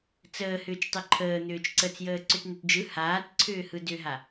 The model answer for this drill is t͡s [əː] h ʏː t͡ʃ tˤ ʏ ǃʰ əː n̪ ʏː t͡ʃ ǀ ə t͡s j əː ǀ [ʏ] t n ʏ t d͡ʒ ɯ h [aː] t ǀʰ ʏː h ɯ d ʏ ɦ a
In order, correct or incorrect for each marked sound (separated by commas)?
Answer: correct, correct, correct